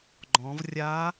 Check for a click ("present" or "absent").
present